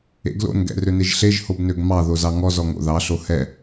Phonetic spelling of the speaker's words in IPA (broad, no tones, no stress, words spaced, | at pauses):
ḛɡlo̰n ɡɛ̰røneʒɬeʒ hobnøɡmɑ ðozɑŋɔ zɔŋo̰ðɑ ɬohɛ